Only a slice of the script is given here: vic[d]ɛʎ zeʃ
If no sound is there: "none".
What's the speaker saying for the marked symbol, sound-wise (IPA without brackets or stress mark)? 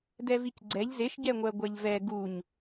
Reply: ɡ͡ǀ